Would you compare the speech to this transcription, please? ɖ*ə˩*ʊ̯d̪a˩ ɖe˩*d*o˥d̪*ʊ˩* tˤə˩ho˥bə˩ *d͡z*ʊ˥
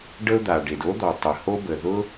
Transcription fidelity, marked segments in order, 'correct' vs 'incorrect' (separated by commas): incorrect, correct, incorrect, incorrect